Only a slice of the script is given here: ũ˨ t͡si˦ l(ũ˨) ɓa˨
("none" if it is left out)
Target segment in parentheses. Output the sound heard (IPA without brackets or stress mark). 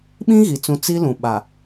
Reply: ũ˨